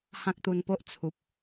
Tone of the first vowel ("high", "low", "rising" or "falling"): high